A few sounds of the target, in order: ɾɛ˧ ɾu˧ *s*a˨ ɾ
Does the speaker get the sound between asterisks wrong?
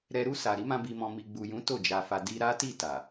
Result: no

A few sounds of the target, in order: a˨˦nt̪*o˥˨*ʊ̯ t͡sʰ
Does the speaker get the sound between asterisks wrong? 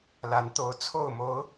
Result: yes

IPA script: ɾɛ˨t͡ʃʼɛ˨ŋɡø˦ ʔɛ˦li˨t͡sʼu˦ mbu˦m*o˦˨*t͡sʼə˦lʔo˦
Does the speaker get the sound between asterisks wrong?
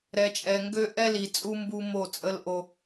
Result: no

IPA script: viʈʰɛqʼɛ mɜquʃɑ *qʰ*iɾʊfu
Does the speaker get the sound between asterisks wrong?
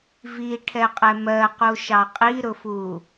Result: yes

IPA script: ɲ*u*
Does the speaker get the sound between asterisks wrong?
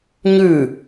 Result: yes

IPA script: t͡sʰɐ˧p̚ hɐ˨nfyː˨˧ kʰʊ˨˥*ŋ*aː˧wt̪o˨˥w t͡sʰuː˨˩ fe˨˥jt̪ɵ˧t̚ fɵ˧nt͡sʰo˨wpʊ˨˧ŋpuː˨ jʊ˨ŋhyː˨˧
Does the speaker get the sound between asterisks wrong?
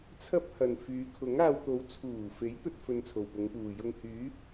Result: no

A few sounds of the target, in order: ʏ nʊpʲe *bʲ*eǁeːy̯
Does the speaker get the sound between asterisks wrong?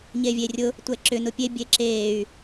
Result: no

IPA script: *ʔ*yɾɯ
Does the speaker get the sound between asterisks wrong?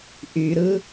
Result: no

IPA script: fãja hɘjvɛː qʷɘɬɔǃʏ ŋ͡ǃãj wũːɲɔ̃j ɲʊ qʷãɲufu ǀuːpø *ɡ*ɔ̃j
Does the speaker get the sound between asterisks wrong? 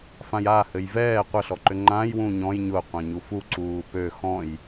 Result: yes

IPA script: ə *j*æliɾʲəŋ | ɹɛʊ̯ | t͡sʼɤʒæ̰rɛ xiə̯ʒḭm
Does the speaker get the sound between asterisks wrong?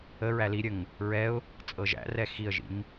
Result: yes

